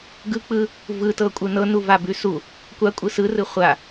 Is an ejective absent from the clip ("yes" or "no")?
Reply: no